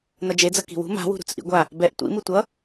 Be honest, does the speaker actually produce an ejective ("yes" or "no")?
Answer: no